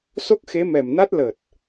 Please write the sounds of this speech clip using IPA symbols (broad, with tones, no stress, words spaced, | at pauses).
so˦˥k̚xe˨˦mɛ˨˩mna˦˥t̚ lə˨˩t̚